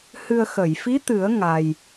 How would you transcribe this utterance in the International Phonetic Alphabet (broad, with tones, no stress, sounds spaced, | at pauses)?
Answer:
h ɨ˧ ə̯ x ə˨˩˨ j f i˧˥ t̪ ɨ˨˩˦ ə̯ ŋ a˧ j